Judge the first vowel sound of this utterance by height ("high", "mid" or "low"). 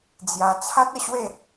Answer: low